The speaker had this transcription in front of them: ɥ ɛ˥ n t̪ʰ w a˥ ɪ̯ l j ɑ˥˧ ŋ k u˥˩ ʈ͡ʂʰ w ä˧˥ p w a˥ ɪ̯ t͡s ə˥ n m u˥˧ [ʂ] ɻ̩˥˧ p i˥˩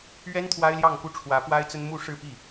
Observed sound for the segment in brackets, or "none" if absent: ʂ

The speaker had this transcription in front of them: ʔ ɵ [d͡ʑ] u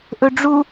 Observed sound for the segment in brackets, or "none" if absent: ɖ͡ʐ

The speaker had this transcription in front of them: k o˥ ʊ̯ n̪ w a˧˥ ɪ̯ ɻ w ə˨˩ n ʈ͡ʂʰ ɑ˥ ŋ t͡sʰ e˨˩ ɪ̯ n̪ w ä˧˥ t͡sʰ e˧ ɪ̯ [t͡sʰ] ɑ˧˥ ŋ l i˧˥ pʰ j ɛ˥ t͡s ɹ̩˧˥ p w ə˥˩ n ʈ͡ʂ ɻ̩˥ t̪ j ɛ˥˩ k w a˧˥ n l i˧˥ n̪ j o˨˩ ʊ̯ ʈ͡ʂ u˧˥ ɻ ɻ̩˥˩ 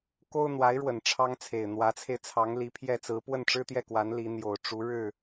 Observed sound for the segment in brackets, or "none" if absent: t͡sʰ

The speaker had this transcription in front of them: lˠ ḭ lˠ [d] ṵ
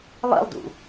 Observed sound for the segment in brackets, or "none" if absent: d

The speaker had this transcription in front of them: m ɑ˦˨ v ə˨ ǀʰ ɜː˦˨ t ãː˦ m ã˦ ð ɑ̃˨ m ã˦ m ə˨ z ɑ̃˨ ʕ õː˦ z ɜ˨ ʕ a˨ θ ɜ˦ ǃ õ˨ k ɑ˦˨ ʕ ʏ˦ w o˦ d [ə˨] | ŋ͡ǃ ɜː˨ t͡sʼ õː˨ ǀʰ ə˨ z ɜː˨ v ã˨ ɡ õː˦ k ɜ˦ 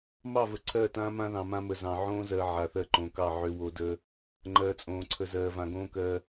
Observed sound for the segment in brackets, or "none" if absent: ə˦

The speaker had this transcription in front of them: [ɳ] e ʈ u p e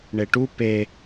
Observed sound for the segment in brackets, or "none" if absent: ɳ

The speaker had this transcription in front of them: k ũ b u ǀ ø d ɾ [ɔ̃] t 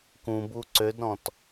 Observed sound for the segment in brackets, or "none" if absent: ɔ̃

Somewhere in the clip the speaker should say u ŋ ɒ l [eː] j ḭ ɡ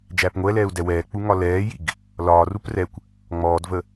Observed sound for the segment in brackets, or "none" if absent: ɛː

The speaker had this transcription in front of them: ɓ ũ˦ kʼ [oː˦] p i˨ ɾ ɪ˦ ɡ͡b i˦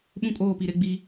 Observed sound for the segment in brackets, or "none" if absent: oː˦˨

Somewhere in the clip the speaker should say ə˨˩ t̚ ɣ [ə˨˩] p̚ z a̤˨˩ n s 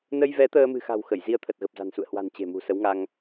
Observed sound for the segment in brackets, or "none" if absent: ə˨˩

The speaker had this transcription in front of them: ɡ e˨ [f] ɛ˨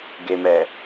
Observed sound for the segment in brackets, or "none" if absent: m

